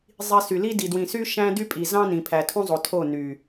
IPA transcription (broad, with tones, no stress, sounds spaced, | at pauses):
zˤ i˨ s y˨ l i˦ d i˨ d w ĩ˨ s y˦ ʃ æ̃˦ d y˦ pʼ i˨ z ɑ̃˦ n ĩ˨ pʰ æ˨ tʰ ũ˦ zˤ o˨ tʰ o˦˨ n y˨